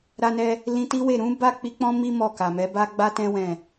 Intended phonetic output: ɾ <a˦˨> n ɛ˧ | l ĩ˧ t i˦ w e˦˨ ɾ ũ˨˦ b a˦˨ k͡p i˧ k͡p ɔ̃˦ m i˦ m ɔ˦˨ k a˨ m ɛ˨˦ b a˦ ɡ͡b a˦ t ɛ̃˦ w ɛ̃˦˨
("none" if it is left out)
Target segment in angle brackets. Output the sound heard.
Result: a˧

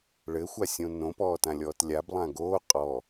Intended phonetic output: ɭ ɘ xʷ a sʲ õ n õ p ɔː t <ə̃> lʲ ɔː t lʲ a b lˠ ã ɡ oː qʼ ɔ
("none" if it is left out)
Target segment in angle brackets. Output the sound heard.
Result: ã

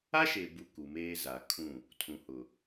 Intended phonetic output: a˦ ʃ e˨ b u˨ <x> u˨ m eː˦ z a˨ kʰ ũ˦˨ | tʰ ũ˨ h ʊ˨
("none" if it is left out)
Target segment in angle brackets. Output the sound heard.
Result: k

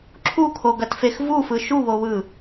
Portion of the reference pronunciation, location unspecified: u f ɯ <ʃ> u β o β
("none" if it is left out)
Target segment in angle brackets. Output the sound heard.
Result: ʃ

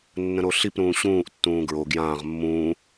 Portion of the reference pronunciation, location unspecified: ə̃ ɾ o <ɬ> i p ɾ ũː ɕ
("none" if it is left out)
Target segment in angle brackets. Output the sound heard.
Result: ɬ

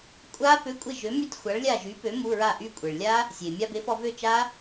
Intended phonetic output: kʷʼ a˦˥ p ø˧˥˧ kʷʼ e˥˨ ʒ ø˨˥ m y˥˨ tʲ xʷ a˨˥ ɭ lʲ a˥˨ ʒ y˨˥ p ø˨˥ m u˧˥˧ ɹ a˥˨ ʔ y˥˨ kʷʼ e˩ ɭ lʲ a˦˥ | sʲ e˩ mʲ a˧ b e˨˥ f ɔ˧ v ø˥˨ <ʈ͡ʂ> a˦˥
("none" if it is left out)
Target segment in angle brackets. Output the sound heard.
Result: t͡ʃ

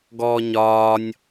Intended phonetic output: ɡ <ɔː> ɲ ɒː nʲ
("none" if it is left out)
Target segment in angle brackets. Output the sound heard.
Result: ɔː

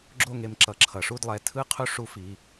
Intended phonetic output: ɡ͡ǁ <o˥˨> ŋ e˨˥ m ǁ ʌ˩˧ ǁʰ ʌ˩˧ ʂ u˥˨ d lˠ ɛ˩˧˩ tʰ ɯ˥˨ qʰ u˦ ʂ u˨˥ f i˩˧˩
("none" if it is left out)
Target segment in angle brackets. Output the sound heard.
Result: o˥˨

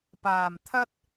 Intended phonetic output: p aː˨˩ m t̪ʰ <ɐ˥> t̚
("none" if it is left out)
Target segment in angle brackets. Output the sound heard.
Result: ɐ˥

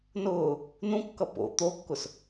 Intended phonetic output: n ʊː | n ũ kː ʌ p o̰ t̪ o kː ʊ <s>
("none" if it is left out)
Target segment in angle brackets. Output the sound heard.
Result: s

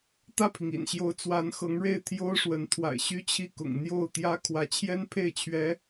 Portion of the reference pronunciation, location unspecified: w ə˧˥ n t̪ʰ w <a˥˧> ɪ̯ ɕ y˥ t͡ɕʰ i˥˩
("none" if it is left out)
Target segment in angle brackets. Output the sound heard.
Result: a̰˨˩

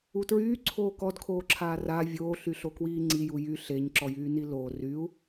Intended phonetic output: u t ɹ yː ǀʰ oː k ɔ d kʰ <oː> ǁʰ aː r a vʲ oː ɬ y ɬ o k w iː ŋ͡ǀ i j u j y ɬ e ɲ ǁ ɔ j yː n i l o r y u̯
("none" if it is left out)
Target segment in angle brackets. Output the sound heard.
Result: oː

